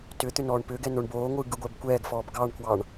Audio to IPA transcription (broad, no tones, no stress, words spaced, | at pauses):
tʏ t̪ʏnɔːɳpʏːɡɛ noɳboːŋʷɯː ɡɯɡʷɛbkʷɛːɡfɔːb ɡɑɳkwɑɳ